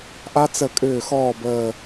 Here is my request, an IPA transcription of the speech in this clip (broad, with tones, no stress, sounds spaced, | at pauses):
ʔ a˦˥ t͡s ə˧˩ kʼ ʏː˧˩ x ɔː˧˩ b əː˧˩